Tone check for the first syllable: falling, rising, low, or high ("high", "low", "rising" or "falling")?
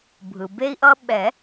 low